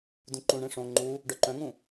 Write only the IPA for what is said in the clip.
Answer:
dũǃũɳẽ ʂõ ŋ͡ǃu | ɖœǃœ̃ŋũ

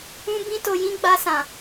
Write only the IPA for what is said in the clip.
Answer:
ũ˦ bĩ˦to˧jĩ˦ɡ͡ba˧ sã˨

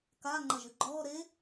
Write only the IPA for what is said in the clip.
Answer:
ka ŋ͡ǃɐʒɵɡ͡ǃɔː ɾe

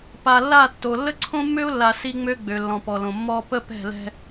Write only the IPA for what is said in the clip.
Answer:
pa˨lːa˦˨tːo˨ lːə˦ǀʰõ˦mːø˦ʊ̯lːa˨ si˦ŋ͡mø˦ɡ͡bø˨lːɔ̃˨ pɔ˨lõ˨mːɔ˦ pə˦ pɛ̤˦˨lɛ̤˦

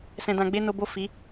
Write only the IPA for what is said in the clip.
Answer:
sɛ̃˧dã˧ɡ͡be˦ no˦ bo˦˨ fi˨˦

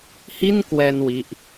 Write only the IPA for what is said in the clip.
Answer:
hi˥˩n kwɛː˧n wi˦˥ʔ

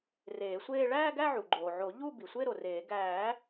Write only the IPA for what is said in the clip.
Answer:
reː˨˩˦sʷeː˥˧ ɭæː˥˧ɡæ˥˧ ʕu˩ɡ͡ǃoː˩ ʕo˨˩˦ ʎu˥˧ bi˩sʷe˥˧ ɾo˩reː˨˩˦ ɡæː˨˩˦

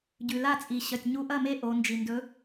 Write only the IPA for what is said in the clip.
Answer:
ɟʉ˩la˥˩t͡sʼi˩ ɕɐ˩tʲɲu˨˥ʔɐ˥˩me˦ ʔo˩˧nd͡ʒi˩ndɵ˨˥

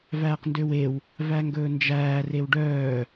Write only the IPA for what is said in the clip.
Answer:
væːqndøwew | væŋɡɵːnd͡ʒæː rewɖœː

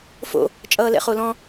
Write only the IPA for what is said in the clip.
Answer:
fo̰ | t͡ʃʼʌːlɛ̰χolɔ̃

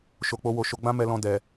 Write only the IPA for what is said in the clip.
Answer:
ʃo˨k͡po˧wo˨ ʃo˨˦ɡ͡bã˦mɛ˧lɔ̃˧ dɛ˨

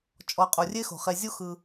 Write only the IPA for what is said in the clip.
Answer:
t͡ʃʼɔ˨ qʼu˩rʲe˦xo̤˩χe˨ zʲu˦xɯ˨

